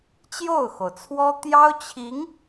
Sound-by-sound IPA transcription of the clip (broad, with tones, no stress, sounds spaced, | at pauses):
t͡ɕ j o˥˩ ʊ̯ x o˩ ʊ̯ t͡sʰ w ɔ˥ t̪ j ɑ˥ ʊ̯ t͡ɕʰ i˧˥ ŋ